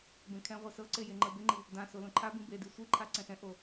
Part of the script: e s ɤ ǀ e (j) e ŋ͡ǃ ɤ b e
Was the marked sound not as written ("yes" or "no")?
no